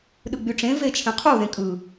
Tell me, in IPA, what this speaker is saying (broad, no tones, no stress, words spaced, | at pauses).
ɗɯɡ͡byʈ͡ʂẽ vet͡ʃʰẽqʰu ðẽkʼɯ